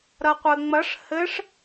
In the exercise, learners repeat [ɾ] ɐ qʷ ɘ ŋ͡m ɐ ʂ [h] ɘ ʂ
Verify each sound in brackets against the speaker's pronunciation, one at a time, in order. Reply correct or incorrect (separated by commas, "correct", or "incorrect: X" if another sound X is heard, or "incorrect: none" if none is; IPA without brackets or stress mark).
correct, correct